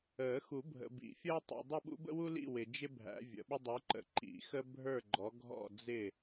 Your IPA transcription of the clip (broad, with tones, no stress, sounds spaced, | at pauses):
əː˨˩˦ x u˨˩˦ bʱ ə̰˨ b ḭ˨˩˦ fʲ əː˥ tˤ ḭ˨ dˤ ʊ˥˨ ɓ ṵ˥ b ə̰˥ w u˥ l ḭ˥˨ w ɪ˨ d͡ʒ ɪ˥ bʱ æ̰˨˥ vʲ ə̰˨˩˦ ɓ ʊ˥ dˤ u˨˥ ǃ ə̰˨˩˦ ǃ ḭ˨˩˦ x ə˥ bʱ ə˞˥˨ ɡ͡ǃ ɔ˨˥ ɡʱ ɔ̰˥˨ d͡z ɪ˥˨